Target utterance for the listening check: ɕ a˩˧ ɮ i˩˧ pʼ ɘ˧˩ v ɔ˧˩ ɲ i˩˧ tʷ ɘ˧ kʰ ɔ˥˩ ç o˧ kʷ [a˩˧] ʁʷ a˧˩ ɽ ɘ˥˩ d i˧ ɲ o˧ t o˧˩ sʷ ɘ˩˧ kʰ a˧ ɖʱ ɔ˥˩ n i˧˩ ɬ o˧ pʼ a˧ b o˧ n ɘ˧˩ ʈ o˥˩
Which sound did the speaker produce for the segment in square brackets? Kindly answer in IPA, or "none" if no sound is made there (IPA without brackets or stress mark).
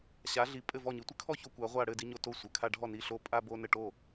a˩˧